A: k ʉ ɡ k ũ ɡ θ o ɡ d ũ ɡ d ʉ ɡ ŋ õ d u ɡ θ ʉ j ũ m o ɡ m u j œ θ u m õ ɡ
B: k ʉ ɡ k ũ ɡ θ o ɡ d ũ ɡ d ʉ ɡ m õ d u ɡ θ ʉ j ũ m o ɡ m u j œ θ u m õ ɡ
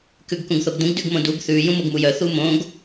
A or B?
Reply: B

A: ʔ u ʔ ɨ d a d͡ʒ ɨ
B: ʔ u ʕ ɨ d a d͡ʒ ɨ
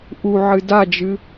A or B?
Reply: B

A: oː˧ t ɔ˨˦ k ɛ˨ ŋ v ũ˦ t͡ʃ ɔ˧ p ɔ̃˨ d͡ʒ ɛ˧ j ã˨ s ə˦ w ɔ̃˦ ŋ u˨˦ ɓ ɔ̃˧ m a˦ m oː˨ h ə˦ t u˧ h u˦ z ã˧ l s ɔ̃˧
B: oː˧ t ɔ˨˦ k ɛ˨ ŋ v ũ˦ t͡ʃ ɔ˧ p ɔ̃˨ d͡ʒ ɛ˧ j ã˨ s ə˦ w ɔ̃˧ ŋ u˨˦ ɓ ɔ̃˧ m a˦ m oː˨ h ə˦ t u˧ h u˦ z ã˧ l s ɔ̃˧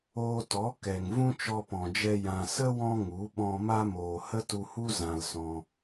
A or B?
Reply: A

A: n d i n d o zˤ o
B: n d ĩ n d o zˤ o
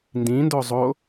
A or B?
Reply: B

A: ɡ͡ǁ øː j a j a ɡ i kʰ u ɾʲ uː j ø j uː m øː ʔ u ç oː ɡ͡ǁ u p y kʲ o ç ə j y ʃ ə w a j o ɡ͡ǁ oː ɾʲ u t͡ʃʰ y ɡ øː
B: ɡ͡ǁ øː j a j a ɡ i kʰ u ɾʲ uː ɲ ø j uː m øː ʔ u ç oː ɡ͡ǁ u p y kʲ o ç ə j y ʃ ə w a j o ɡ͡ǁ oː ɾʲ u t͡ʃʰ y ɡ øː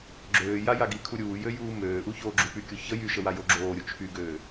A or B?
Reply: A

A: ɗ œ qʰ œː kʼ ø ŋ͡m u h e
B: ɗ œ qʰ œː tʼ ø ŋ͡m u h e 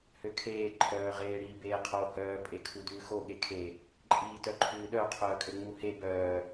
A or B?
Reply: A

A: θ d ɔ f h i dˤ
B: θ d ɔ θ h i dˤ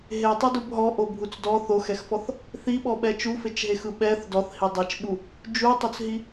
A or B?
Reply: B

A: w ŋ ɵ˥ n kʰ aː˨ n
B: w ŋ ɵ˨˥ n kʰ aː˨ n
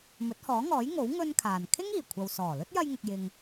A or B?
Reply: A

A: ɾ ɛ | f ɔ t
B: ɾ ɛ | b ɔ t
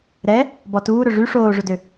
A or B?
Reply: B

